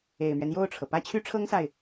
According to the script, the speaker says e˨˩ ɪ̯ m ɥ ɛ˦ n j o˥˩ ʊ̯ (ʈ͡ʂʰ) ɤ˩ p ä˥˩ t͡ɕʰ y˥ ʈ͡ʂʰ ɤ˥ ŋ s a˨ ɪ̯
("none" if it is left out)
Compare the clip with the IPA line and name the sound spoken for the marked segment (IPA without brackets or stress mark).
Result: ʈ͡ʂʰ